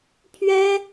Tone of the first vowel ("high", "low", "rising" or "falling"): high